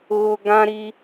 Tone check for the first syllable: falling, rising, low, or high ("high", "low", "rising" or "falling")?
high